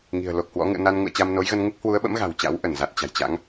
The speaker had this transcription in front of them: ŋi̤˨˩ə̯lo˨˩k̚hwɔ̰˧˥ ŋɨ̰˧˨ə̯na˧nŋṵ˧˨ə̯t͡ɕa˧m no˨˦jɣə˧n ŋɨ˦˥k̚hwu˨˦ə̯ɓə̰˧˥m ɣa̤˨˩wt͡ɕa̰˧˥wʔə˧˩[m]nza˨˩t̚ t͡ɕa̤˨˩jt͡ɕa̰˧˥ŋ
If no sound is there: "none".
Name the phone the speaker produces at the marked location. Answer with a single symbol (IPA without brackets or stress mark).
none